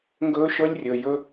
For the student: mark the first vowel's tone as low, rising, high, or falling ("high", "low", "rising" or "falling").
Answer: high